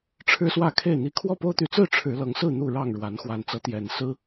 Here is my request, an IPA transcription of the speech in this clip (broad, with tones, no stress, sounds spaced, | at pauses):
ʈ͡ʂʰ ɻ̩˦ s w ä˥˨ kʰ e˥˨ ɪ̯ n̪ i˦ kʰ w ɔ˥˨ p o˦ ʊ̯ t̪ y˨˦ t͡s ɹ̩˥˨ ʈ͡ʂʰ ɻ̩˨˦ l ɤ˨˦ ŋ s ɹ̩˥˨ n̪ u˥˨ ɻ ɑ˥˨ ŋ ɻ w a˨˦ n x w a˨˩ n t͡s ɤ˨˦ t̪ j ɛ˨˩ n s ɹ̩˦